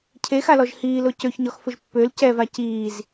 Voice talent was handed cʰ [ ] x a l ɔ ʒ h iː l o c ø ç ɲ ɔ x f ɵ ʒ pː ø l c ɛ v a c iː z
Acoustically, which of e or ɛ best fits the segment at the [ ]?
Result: e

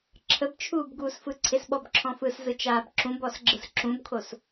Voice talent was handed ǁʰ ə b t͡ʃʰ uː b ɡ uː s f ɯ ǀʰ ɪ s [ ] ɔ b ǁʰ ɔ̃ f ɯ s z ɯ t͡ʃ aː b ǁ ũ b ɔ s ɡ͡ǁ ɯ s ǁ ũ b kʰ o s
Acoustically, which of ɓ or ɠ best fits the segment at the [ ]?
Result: ɓ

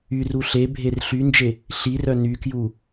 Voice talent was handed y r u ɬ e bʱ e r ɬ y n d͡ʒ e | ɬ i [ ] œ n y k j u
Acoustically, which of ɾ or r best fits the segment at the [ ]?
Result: r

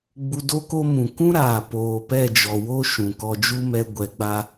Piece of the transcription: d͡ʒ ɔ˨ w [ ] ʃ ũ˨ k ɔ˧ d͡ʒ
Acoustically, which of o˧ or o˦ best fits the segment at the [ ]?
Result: o˦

